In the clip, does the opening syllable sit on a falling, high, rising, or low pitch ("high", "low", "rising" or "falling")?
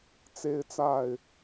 high